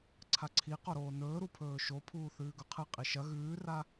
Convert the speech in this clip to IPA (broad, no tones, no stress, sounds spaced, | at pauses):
ǀʰ a ǀʰ i q o ɾ oː n ɵː ɾ u pʰ ɵː ʃ o pʰ uː θ ʉː ɡ ɵ qʰ ɨ qʼ i ʃ ɐ ɣ ʉː r a